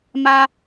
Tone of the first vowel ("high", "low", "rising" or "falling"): high